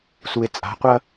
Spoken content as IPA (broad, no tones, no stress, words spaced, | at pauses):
sue̯t͡sʼa̤qʷɐ